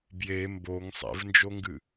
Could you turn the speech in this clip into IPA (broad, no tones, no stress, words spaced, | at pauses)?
bje mboŋ sˤḛvnd͡ʒoŋɡɨ